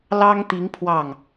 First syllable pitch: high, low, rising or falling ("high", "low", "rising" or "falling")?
high